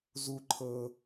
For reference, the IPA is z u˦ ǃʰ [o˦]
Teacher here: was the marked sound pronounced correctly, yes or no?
no